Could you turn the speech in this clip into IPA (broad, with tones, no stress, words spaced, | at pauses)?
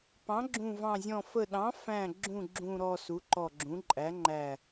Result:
pɑ̃˩˥ɡ͡ǁũ˧˩vɑ̃˧˩zʲɔ̃˧˩ fə˧˩ɗɑ̃˩˥fæ̃˧˩ɡ͡ǁũ˧˩ ɡ͡ǁũ˧˩ɾɔ˧˩ su˩˥ǃɔ˧˩ɡ͡ǁũ˩˥ ǃʼæ˩˥ŋ͡ǃæ˧˩